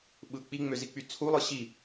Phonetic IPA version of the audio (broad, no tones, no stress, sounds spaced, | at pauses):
ɓ ɯ k͡p i ŋ͡m ø z i k͡p y t͡sʰ u lˠ ɯ ɕ i